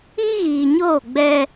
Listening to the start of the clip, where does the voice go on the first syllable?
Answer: high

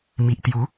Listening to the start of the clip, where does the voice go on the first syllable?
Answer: low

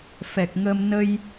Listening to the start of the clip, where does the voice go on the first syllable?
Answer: low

